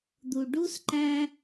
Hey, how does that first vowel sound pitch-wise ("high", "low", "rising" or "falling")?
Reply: low